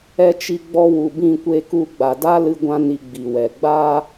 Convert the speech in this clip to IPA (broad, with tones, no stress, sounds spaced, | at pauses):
ɛ˧ t͡ʃ i˧ ɡ͡b ɔ˧ w u˨ b ĩ˦˨ kʷ e˧ k u˧ ɡ͡b a˨ d a˦ l ɨ˦ ɡʷ ã˦ n i˧ ɡ͡b i˨ w ɛ˨ ɡ͡b aː˦